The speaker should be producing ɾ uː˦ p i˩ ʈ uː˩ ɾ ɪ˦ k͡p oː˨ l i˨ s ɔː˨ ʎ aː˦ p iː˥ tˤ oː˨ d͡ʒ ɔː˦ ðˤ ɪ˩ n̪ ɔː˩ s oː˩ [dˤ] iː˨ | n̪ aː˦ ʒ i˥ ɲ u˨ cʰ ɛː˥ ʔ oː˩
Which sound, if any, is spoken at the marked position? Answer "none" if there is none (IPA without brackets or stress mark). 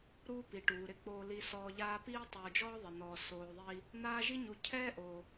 ðˤ